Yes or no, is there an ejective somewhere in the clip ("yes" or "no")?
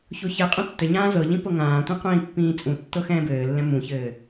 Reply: yes